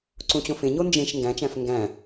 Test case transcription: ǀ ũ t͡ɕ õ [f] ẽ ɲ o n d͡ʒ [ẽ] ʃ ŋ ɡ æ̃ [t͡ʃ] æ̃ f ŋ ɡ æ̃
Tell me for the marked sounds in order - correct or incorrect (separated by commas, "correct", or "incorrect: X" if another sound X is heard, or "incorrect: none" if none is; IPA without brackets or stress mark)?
correct, correct, correct